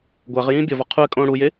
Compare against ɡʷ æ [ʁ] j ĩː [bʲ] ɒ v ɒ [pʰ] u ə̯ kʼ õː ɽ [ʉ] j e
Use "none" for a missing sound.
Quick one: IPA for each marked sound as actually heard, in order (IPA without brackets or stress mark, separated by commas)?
ʁ, bʲ, qʰ, u